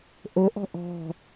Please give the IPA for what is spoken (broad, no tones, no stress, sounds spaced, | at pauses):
ʔ o ʔ ɔ̤ ʔ ɔ̤